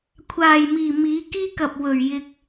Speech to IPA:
kʷʰaː˨j miː˨miː˨˧ kiː˧kɐ˨p̚wɵ˨ɥ jɪ˧k̚

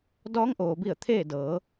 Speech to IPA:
dɔː˧˥ŋʔoː˩bi˧˩ə̯ t̪ʰeː˥˨dɤː˩˧

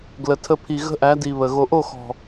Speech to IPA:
ɡlə˨tʰə˧pʰi˨ ɣə̤˦ʔæ˨˦di˨ βə˨ ɣo˨ʔo˦˨xɔ̤˨

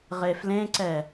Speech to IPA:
ʁeflẽǀɛ

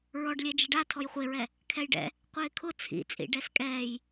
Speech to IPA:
ɹɔɖlʲɛ d͡ʒɪɖa tʰɔjχʷeɹɛ | kʰɛjɖɛ̰ | qʷɪːkʰʊ t͡sʰḭt͡sʼḭ ɖɛskʼɛːj

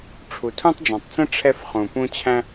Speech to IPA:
ʈ͡ʂʰu˨tʰũ˦tˤd͡ʒɑ̃˨tˤt͡sə̃˦ ʈ͡ʂʰɛ˦fχũ˨pũ˦ t͡ɕʰæ̃˦

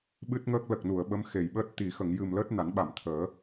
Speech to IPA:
ɓɨ˦˥t̚ŋəː˦˥k̚ lə˨˩k̚nu˨˩˨ə̯ ɓə˧˥mxe˨˩˨jɓəː˦˥t̚ t̪i˨˩˨xə˨˩˨ŋjɨ˨˩mləː˦˥t̚ na˨˩˦nɓa˨˩˨mt̪ʰəː˨˩˦

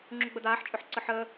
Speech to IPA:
ŋ͡ǁuɡ͡bəd̪aːħ t͡ʃʼʏħǀəħəː

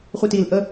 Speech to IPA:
χʷitil ʔə

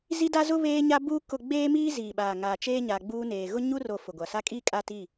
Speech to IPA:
zi˦da˦zʊ˦ βeː˦ɲa˦buː˦ kʊ˨ ɡ͡beː˦miː˦ ziː˨ɓaː˨ŋaː˨t͡ʃeː˦ ɲa˨ɡ͡buː˦neː˨ ɣʊ˦ɲu˦ro˨ fʊ˨ɡʷa˨ sa˦kʼiː˦ kʼa˦ti˦˨

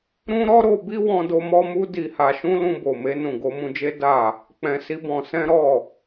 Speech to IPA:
ɾũ˦ ɾɔ˦ ɾo˧bi˦wɔ̃˧do˧ mɔ˦mu˦ di˧ha˧ʃũ˦ lũ˧bo˨me˧ nũ˨ɡo˧mũ˧d͡ʒe˦ da˦˨ | k͡pɛ̃˧si˦bɔ̃˧ sɛ̃˦ɾɔ˦˨

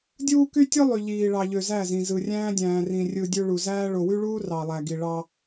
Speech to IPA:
dʲuː˦ky˦tʲɯ˦ lˠy˨ ʎiː˨ɭɑ˨ ʎø˨zæ˦˨zĩ˨zɯ˨ rʲæ̃ː˦dʲæ̃ː˨rĩ˨ rʲɯ˨ dʲø˦ɭu˨ zæː˦ ɭo˨wy˦ɭuː˦ rɑ˨ lˠæ˨ɡi˨ ɭɑ˦

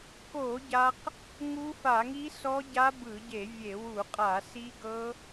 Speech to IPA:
ko˧˩˧ ɟa˦˥q | ŋu˦˥fa˧˩˧ŋi˦˥ sɔ˦˥ɟa˦˥bɯ˧˩˧ɟe˧˩˧ vʲe˧˩˧ wu˧˩˧qʼa˧˩˧ si˦˥ɡɤ˦˥

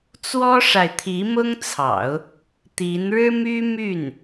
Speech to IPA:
t͡swɔ˥ʂa˨ɪ̯t̪ʰi˧˥ mʊ˥ŋt͡sʰɑ̰˨˩˦ʊ̯ | t̪i˧˥n ɻɻ̩˥my˥my˥˩n

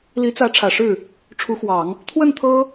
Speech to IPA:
li˧˥t͡sä˧˥ ʈ͡ʂʰä˨˩ʂɻ̩˥˩ | ʈ͡ʂʰu˧˥xwɑ˨˩˦ŋ | t̪ʰwə˥˩n t̪ʰɤ˥

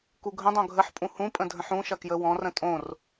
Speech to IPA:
kuɡʱə̃dˤõ ɡʱəħpʼũ hũpʼə̃ dʱə̃ħũʃɐ kjəwɔ̃rə̃ tʼõr

